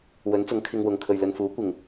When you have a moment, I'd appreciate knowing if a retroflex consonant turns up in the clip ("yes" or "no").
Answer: no